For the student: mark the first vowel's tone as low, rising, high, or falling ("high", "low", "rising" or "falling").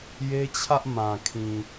high